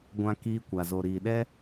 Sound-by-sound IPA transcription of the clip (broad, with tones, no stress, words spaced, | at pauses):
ɡʷã˧ kiː˧kʷa˨ zo˨ɾiː˨ɗɛ˦